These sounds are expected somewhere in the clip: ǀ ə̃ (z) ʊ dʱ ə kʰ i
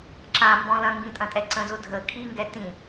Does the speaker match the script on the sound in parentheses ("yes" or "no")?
yes